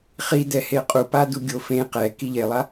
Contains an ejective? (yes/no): yes